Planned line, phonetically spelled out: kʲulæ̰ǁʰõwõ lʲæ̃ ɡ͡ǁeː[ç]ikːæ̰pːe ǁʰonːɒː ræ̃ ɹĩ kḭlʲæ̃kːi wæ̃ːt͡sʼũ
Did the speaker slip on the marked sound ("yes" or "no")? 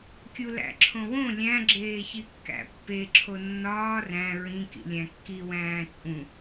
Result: no